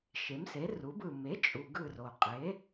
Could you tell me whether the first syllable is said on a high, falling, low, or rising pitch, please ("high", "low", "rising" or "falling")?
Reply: rising